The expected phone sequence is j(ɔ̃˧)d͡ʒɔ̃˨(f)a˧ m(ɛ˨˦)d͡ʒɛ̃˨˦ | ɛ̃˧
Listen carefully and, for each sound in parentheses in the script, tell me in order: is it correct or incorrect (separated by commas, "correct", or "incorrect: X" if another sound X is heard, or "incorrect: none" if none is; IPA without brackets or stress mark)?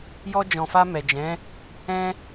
incorrect: ɔ˧, correct, incorrect: ɛ˨